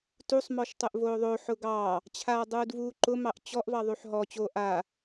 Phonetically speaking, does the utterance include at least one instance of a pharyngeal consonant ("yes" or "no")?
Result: yes